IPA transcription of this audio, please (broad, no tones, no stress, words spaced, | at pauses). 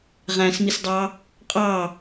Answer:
ʁæ̃smisdˤɑ | qʼɑ